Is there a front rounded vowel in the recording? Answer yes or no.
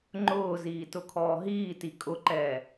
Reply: no